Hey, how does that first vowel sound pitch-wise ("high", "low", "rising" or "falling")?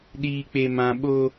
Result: low